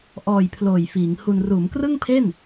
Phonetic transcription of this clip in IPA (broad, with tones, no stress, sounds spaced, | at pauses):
ʔ ɔː˨˩ j pʰ l oː˨˩ j f iː˩˦ ŋ h u˧ n r uː˩˦ m k r ɯ˥˩ ŋ pʰ e˥˩ n